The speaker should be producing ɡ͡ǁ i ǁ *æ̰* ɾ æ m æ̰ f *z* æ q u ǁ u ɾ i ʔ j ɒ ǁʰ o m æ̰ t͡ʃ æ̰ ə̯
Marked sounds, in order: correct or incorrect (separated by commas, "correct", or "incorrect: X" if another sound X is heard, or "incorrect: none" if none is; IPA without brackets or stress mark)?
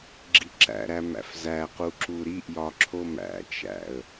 correct, correct